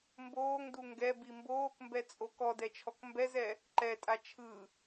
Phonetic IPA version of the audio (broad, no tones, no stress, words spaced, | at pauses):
mboːŋdu ŋɡɛbi mboːkmbɛt͡sʼo kɔdɛt͡ʃʰɔk mbɛzɛ | ǃɛtʼa t͡ʃʰɯ